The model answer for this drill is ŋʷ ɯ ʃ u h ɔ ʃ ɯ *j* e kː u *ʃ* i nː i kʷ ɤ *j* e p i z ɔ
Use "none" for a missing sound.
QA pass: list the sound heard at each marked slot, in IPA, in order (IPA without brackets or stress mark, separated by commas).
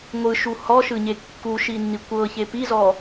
ɲ, ʃ, ç